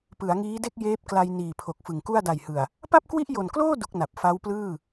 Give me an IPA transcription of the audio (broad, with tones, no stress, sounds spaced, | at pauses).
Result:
p ɯ˩˦ a̯ ŋ iː˦˥ d e˥˩ k̚ j eː˦˥ p̚ k l a˧ j n iː˨˩ pʰ o˨˩ k̚ f ɯ˨˩ ŋ k u˥˩ a̯ d a˨˩ j h ɯ˨˩ a̯ | p a˥˩ p̚ k w i˥˩ ʔ j o˨˩ n k l oː˥˩ d u˦˥ k̚ n a˨˩ p̚ f a˦˥ w p l ɯː˥˩